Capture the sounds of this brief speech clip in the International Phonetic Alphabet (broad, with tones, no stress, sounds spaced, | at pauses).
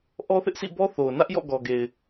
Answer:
ʔ ɔ˦ θ ɪ˦ ʔ s ḭ˦˨ b ɔ˦ θ o˨ ʊ̯ n ä˦ ʔ j ɔ̰˦˨ ɡ ɔ˨ ɡ e˨ ɪ̯